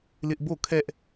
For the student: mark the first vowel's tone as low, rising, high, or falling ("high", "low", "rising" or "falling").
high